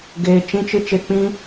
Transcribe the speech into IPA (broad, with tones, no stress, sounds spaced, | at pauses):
ɡ eː˧ t͡ʃ ĩ˦ t͡ʃ ɨ˦ t͡ʃ e˧ k͡p ĩ˦